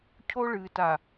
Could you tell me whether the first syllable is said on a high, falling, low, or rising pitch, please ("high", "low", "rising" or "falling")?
high